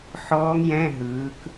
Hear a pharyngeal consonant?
yes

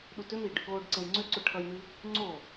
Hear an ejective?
no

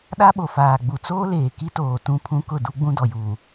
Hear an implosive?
yes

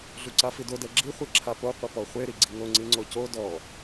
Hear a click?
yes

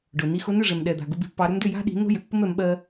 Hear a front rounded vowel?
yes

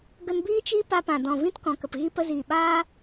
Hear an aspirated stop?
no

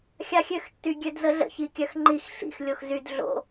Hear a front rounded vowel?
yes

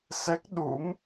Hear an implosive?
yes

